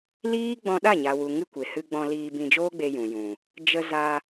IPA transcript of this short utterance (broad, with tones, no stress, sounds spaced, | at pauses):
l iː˦ ɡ͡b ɔ̃˧ ɗ a˦˨ ɲ a˨ w u˨ ŋ ɨ˧ kʷ e˨ h ɨ˧ ɡ͡b ɔ̃˧ l iː˧ b ĩ˧ d͡ʒ oː˦ ɡ͡b e˧ j ũ˨ j ũ˨ | d͡ʒ ə˧ z a˧